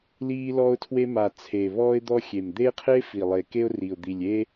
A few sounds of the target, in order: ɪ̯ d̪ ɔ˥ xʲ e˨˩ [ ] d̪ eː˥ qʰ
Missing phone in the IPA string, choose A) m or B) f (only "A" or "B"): A